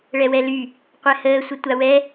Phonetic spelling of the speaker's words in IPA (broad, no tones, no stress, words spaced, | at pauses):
ɭɛwɛly | qʷɛhəː sʷətʷawɛ